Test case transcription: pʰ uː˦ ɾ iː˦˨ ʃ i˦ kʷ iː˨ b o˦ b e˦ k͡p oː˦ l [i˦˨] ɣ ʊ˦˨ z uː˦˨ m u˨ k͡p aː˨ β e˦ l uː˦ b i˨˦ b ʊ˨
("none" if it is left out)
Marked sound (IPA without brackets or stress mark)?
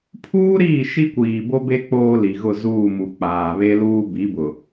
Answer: i˨